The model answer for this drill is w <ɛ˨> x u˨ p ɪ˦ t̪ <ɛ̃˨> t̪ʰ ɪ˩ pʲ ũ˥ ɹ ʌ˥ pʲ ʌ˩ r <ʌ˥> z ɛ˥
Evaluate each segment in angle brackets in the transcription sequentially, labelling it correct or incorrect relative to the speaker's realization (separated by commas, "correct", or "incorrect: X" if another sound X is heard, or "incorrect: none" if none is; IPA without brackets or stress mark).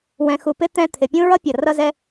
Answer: incorrect: ɛ̃˨, incorrect: ɛ̃˦, correct